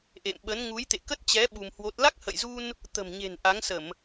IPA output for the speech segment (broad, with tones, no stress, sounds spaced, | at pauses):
ʔ ḛ˧˨ m ɓ ə˨˦ n ŋ u˨˦ j t̪ ḛ˧˨ k ə˦˥ t̚ t͡ɕ ɛ˨˦ ɓ u˧ m h w o˦˥ t̚ l a˦˥ k̚ h ə̰˧˨ j z u˧ n | t̪ ə̤˨˩ m ɲ e̤˨˩ n ʔ a˨˦ ŋ s ə˧˩˨ m